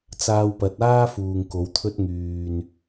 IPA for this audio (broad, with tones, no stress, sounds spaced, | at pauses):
t͡s aː˧ w p ɐ˨˥ t̚ aː˥ f uː˨ ŋ k o˨˥ w t̪ʰ ɵ˥ t̚ ŋ yː˨ n